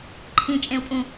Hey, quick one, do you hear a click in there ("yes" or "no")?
yes